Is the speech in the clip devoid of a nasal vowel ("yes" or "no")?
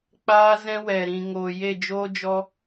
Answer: no